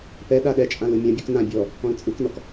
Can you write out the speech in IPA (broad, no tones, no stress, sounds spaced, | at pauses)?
p ɛ ɗ a ɗ ɛ t͡ʃʼ ã l ɯ mʲ ã bʲ u k n ã bʲ ɔ | ɔ̃ l t͡sʼ ɯ k n ɔ k